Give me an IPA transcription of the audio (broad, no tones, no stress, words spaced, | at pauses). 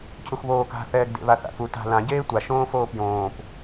cʰuxβoːk a̤ θɛːɡdḛβaθa̰k u ta̤ lã ɟeːtʷa ʃõːfoːpjõːp